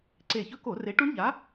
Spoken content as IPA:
ǀ e˧˩ ç ɵ˦˥ k o˧˩˧ r e˨˥ ʈ u˦˥ ɳ ʎ a˨˥

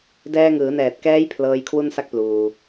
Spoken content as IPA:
d ɛː˧ ŋ ɯː˩˦ n ɛː˨˩ t̚ k ɛː˦˥ j pʰ l ɤː˦˥ j kʰ w u˥˩ n s a˥˩ k̚ p l uː˧

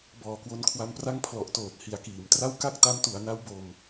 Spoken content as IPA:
b ɔː˨˩ k w o˧ n kʰ w a˧ m p r a˥˩ ŋ pʰ l ɔ˨˩ ʔ t oː˨˩ t̚ h i˩˦ a̯ k iː˩˦ m t r a˥˩ w k a˥˩ k̚ t a˦˥ m t u˩˦ a̯ n a˦˥ w b o˧ m

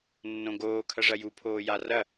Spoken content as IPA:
nː õ ɡ oː kʰ ɐ ʐ ɐ j u pʰ oː j a r ɐ

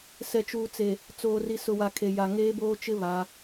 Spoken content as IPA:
s ɛ˨ t͡ʃ uː˨ t͡s e˨ | t͡s oː˨ r i˨ s ʊ˨ w a˨ kʰ e˨ j a˨ ŋ eː˦ b oː˦ t͡ʃ ɪ˦ β a˨˦

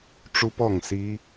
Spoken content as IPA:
ʈ͡ʂ u˦˥ p ɔ˥˩ ŋ s i˦˥

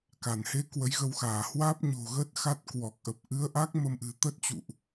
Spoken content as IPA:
k a˧˩ n h e˨˦ k w ə˨˦ j ɣ ə˧ w x aː˧˩ h w aː˦˥ p̚ ɲ o̤˨˩ ɣ ə˦˥ t̚ x a˦˥ t̚ k w ɔ˨˩ k̚ ʔ ə˨˩ p̚ ʔ ɨ˨˦ ə̯ ʔ a˦˥ k̚ m ə˧ m ʔ ɨ̤˨˩ t̪ ə˦˥ t̚ t͡ɕ ṵ˧˨ ʔ

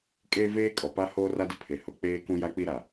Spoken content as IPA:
kʼ eː˦ v eː˦ kʼ ɔ˨ p a˦ h oː˦ r a˦ d ɪ˦ pʰ e˨ h ʊ˨ k͡p eː˦ k ũ˦ j a˦ k͡p i˦ ɾ a˨

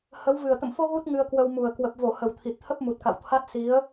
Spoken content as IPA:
h ə˨˦ w v ɨ˨˩ ə̯ t̪ ə̰˧˨ m f o˧ ɣ u˦˥ t̚ ŋ ɨ˧ ə̯ k w ə˧ w m u˨˩ ə̯ k w ə˨˩ p̚ v o˧˩ h ə˨˩ w t̪ʰ i˨˩ t̚ t̪ʰ ə˦˥ p̚ m u˨˩ t̚ k a̰˧˨ w t̪ʰ a˦˥ t̚ s i˨˦ ə̯

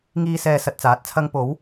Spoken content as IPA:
ŋ iː˥ s ɛː˧ s ɐ˧ t̚ t͡s aː˨˥ t̚ t͡sʰ ɐ˥ ŋ p o˨˥ w

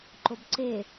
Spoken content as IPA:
ǃ o b ǀ e

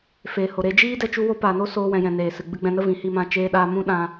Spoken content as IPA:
f e˨ h o˨ ɾ e˧ d͡ʒ iː˦ d ɛ˦ t͡ʃ u˦ w o˦ p aː˨ n o˦ s oː˧ w ɛ̃˨ j ɛ̃˨ n eː˨ s ɨ˨ ɡ͡b ɨ˦ ɡ͡b ɛ̃˧ n ə˦ v ĩ˨ h i˦˨ m ã˧ t͡ʃ eː˧ ɗ aː˧ m ũ˦ ɗ ã˧

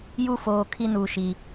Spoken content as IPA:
j u˦˨ f oː˨ kʰ i˦ n uː˨ ʃ i˨

